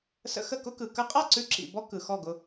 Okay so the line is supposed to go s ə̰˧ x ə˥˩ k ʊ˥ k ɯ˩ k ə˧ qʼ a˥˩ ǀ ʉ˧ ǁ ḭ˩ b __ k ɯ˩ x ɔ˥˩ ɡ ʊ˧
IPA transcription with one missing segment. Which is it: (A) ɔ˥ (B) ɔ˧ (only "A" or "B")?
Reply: A